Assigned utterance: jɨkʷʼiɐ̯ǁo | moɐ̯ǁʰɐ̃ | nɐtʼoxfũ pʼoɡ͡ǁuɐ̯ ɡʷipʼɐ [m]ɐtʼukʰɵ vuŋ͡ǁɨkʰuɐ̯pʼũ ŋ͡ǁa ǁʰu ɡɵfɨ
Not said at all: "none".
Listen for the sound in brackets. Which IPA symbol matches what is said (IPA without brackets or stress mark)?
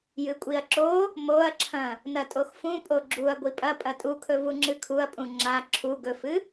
pʼ